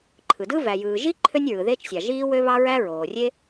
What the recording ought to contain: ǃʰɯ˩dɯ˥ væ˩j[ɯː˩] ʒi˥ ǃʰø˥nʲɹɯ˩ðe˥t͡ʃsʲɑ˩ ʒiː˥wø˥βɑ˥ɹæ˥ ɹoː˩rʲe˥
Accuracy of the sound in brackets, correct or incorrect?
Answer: correct